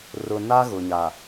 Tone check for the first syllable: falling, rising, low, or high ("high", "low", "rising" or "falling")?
low